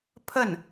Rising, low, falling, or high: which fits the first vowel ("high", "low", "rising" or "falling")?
falling